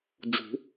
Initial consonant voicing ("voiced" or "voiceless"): voiced